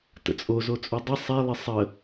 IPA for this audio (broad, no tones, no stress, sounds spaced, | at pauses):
t ə̰ t͡sʼ o z o t͡sʼ u dˤ ɪ sˤ ɛ lˠ ɪ sˤ ə